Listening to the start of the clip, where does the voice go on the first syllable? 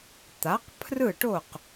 rising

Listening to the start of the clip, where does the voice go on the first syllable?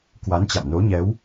rising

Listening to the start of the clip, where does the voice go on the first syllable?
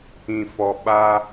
low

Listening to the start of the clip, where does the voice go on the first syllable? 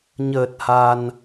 low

